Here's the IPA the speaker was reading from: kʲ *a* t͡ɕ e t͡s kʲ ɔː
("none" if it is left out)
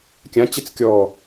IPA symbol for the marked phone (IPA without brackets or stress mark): ã